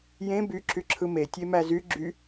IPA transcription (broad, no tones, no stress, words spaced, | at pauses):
jẽ by ǁyǁʰɯme tʲemæzy ɡ͡ǁy